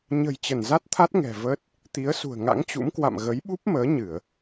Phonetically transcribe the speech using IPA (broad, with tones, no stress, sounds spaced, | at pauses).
ɲ ə̤˨˩ j t͡ɕ ə˧˩ n z a˦˥ t̚ t̪ʰ a˦˥ t̚ ŋ ɛ̤˨˩ v əː˦˥ t̚ | t̪ i˨˦ ə̯ s ṳ˨˩ ə̯ ŋ a̰˧˥ ŋ t͡ɕ ṵ˧˥ m k w a̰˧˨ m ɣ ə˨˦ j ɓ u˦˥ p̚ m əː˨˦ ɲ ɨ˧˩˨ ə̯